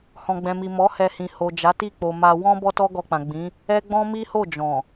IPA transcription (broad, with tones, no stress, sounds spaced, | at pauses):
h ɔ̃˨ ɡ͡b ɛ̃˨ m i˨ m ɔ˨˦ h ɛ˧ h ĩ˨ h o˨ d͡ʒ a˨˦ t i˦˨ k͡p o˨ m a˧ w ɔ̃˦ b ɔ˦ t ɔ˦ ɡ ɔ˧ k͡p ã˨ ɡ͡b ĩ˨˦ | ɛ˦ ɡ͡b ɔ̃˦ m i˦ h o˦˨ d͡ʒ ɔ̃˨